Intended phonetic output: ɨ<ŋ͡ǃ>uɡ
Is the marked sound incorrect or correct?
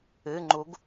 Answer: correct